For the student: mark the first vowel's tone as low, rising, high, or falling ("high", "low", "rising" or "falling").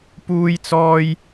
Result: high